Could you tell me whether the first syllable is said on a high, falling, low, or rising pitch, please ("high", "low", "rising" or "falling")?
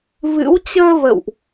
rising